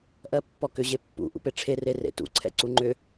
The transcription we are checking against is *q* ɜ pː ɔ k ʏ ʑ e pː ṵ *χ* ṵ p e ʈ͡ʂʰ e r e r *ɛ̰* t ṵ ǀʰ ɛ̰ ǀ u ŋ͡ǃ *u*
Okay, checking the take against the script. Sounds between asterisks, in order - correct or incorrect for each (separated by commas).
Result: incorrect, incorrect, incorrect, incorrect